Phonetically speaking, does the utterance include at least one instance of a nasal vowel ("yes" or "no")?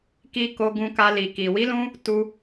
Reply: yes